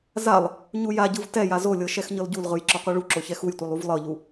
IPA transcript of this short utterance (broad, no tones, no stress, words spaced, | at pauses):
zalˠ | ɲujaɟɯv tɛ jazolʲɤ ʃɛxɲɤlɟulʁɯj ǁɔqʷɤɭuǁo çɛxujtʷilˠ uvlˠɤʎu